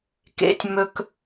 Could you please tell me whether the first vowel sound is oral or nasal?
oral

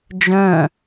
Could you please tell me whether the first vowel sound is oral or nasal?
nasal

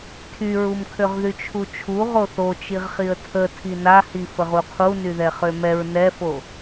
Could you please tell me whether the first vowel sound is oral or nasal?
oral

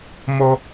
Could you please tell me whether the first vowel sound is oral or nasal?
oral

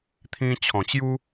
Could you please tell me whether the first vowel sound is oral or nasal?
nasal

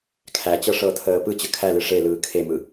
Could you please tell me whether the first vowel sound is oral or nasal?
oral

